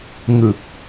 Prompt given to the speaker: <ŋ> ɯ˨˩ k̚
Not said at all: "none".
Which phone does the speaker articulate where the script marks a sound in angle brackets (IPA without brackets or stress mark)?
ŋ